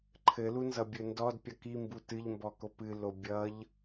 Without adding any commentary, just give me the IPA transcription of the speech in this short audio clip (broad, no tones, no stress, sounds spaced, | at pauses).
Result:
ǃʰ ɘ l u n z ʌ bʲ ɵ n d ɔ d pʲ ʌ k i m b u t ɨ ʎ m b ɔ k o p ɨ l o bʲ ʌ ʎ